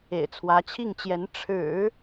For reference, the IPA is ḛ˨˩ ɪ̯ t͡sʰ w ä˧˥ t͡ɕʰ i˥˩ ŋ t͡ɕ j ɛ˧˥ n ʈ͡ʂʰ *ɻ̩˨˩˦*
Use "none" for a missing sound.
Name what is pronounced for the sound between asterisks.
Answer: ɻ̩˨˩˦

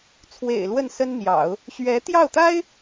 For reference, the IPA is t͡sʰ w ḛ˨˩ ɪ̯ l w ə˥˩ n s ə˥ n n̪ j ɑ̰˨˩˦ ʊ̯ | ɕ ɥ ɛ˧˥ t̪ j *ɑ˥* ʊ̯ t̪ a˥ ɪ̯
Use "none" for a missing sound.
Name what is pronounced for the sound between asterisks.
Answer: ɑ˥˩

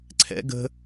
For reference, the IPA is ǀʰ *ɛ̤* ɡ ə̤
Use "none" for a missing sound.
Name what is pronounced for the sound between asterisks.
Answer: ɛ̰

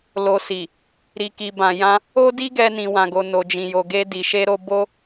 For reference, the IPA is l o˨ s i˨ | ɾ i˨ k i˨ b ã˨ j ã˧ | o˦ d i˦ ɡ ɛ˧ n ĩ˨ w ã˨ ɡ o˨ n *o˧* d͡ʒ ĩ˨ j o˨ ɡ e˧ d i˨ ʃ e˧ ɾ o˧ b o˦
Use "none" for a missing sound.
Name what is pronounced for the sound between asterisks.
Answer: o˨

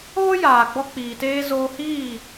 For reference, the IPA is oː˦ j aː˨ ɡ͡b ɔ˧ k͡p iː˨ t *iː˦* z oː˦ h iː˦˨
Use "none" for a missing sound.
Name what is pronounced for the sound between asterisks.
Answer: eː˦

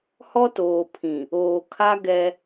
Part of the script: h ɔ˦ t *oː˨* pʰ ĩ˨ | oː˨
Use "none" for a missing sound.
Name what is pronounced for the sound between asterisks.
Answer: oː˨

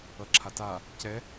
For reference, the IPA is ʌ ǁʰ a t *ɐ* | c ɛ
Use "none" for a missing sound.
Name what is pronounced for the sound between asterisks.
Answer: a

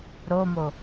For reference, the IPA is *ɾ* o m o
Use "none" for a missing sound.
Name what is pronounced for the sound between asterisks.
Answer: ɾ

